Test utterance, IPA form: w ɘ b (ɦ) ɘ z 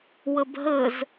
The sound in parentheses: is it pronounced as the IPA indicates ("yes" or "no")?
yes